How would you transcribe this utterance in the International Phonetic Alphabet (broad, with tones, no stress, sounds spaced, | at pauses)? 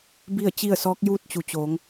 b i˥˨ ə̯ t͡ɕ i˥˨ ə̯ s ɔː˧˥ k̚ j uː˥˨ t̚ t͡ɕ u˩˧ t͡ɕ oː˩˧ ŋ